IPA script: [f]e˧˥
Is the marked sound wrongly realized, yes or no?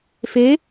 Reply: no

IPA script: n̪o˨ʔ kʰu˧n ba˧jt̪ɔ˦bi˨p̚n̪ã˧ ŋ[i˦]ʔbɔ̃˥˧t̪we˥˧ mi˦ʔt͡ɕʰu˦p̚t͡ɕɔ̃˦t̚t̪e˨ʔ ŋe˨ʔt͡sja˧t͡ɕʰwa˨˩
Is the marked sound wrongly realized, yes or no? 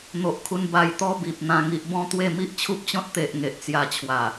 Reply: yes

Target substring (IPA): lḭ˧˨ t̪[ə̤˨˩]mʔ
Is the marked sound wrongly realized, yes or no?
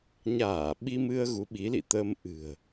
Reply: yes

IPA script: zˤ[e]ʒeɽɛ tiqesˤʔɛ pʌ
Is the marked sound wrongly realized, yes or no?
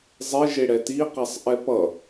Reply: no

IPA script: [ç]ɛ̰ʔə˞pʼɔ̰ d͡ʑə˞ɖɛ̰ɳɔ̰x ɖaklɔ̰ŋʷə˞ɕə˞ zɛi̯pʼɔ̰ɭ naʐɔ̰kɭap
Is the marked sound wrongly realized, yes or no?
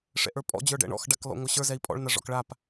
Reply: yes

